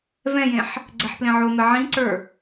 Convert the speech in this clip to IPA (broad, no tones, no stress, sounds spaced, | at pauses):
v ɛ̃ j ẽ ħ | ɡ͡ǀ ɛ ħ p l ẽ ʕ o m ɛ ʕ ĩ ǀ ə˞